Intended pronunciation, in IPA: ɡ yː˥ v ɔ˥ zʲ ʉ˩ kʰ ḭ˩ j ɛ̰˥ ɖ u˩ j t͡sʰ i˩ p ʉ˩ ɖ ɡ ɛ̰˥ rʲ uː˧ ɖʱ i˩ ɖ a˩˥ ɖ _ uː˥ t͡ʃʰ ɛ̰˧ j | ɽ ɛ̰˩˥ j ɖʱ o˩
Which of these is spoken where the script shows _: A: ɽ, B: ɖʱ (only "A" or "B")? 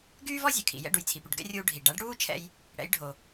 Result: A